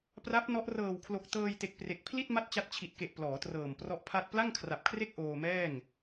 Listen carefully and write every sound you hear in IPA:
p r a˦˥ p̚ n ɔ˦˥ ʔ r ɤː˨˩ w kʰ l o˨˩ k̚ t ɤː˧ j t e˨˩ k̚ p r e˨˩ k̚ pʰ l i˥˩ t̚ m a˥˩ t̚ t͡ɕ a˦˥ t̚ t͡ɕʰ i˨˩ t̚ k e˨˩ ʔ p l ɔː˩˦ t r ɤː˨˩ m p r ɔ˦˥ ʔ pʰ a˥˩ t̚ p l a˥˩ ŋ kʰ r a˨˩ p̚ kʰ r e˥˩ k̚ ʔ oː˧ m ɛː˥˩ ŋ

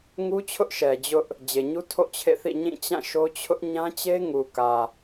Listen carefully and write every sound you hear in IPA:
ŋ u˦ t͡ɕʰ ʊ˦ ʔ ʃ ɛ˨ d͡ʑ ʊ˦ ʔ | d͡ʑ e˨ ɲ u˦ tʰ o̰˦˨ t͡ɕʰ ḛ˦˨ θ ḭ˦˨ ɲ ĩ˦˨ t͡ɕ ã˦˨ ʃ o˦ t͡ɕʰ ʊ˦ ʔ ɲ ã˦ t͡ɕ e˦ ŋ u˨ k ä˨

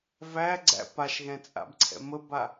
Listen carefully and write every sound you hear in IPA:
v æ ɡ͡ǀ æ̰ p a ʃ ɣ ɛ̃ t͡sʼ a̰ b ǀʰ ɛ̰ m ə b a

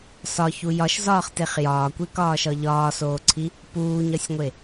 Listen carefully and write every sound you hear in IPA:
s ɒ ç u j ɒ ʃ z ɒː χ t e χ j ɒː kʷ e k ɒː ʃ ɒ ʎ ɒː s oː ǀʰ i | p uː ɲ ɒ sʲ ŋʷ e

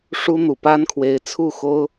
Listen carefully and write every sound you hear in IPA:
ʂ u˥ n̪ u˨˩ p a˥ n kʰ w e˧˥ ɪ̯ t͡sʰ u˥˩ x o˥ ʊ̯

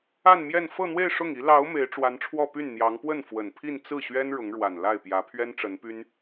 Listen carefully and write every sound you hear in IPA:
a˥˧ n m j ɛ˥˧ n f ɤ˥˧ n̪ w e˥˧ ɪ̯ ʂ ʊ˥˩ ŋ i˧˥ l ɑ˧˥ ʊ̯ m e˧˥ ɪ̯ ʈ͡ʂ w a˧˥ n ʈ͡ʂʰ w ɔ˥˧ p y˥˩ n n̪ j ɑ˧˥ ŋ p w ə˥˩ n f w ə˨˩ n pʰ i˥˧ n t͡s ɹ̩˥˩ ɕ ɥ ɛ˥ n ɻ ʊ˧˥ ŋ ɻ w a˨˩ n l a˥˩ ɪ̯ p j ä˧˥ pʰ ɥ ɛ˥ n ʈ͡ʂ ə˧˥ n p y˥ n

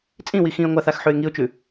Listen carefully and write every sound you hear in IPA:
t͡sʼ ĩ w i x ĩ ə̯ ŋʷ a θ a x ħ ʉ ɪ̯ ŋ i ʊ̯ t͡ʃ ʉ

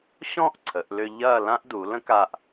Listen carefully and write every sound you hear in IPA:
ɕ ɔ̃˥˧ ʔ ǀʰ ə˩˧ ʔ l ʏ˧ ʎ ɐː˥˧ l ã˥ ʔ d u˩˧ l ə̃˥ k a˧ ʔ

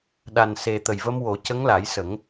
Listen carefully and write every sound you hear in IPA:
ɗ a˨˩ n s e˨˩ t̪ ə˨˩ j v ə˧ m w o˨˩˦ c ə˧˥ ŋ l a˨˩˦ j s ə˨˩˦ ŋ

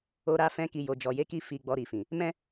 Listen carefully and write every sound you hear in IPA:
o˧ ɾ a˧ f ɛ̃˧ k i˨ j o˨ d͡ʒ ɔ˨ j e˨˦ k i˧ f i˨ ɡ͡b ɔ˨ ɾ i˨ f ĩ˨ | m ɛ̃˦

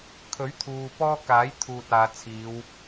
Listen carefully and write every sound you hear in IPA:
kʰ ɵ˨˥ ɥ t̪ʰ uː˨ p ɔː˥ k aː˨˥ j t̪ʰ uː˨ t̚ aː˨ t͡sʰ iː˨˧ w

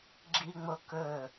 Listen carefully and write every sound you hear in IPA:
ɡ͡ǁ i ŋ͡m o k ɵ

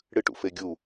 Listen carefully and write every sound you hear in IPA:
ɽ ɨ ʈ ṵ f e ɡʲ u

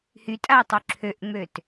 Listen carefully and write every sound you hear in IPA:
h y tʼ a i̯ tˤ y ǁʰ ø ʔ ŋ͡m ø t

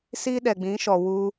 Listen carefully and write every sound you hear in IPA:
s i˦ ɗ ɛ˨ ɡ͡b ĩ˨˦ ʃ ɔ˨ w u˧

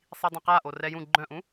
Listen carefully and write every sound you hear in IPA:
sˤ i dˤ ã q a ʔ o r ɛ j ũ ɡ͡ǃ œ̃ ʔ ũ

